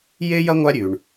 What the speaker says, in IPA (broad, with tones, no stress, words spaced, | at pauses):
je˥jɐ˥ŋʷa˦ɾʲʉ˩ɳ